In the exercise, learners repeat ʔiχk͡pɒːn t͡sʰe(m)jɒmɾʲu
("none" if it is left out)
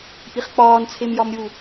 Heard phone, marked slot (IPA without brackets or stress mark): m